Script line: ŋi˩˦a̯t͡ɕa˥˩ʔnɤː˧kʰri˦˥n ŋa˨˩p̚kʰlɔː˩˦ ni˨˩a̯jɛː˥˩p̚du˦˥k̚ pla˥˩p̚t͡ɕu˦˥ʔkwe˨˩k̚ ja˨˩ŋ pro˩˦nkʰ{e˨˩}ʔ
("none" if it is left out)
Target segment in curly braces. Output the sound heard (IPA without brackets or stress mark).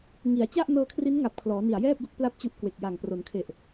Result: e˨˩